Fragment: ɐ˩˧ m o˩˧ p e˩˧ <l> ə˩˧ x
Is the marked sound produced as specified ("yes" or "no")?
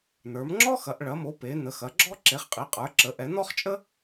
no